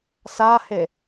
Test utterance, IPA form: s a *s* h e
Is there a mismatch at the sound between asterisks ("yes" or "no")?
yes